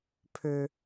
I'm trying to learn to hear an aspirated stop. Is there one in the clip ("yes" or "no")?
yes